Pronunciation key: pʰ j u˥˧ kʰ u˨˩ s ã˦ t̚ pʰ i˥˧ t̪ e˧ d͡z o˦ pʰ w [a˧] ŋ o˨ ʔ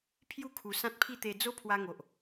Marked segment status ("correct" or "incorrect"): correct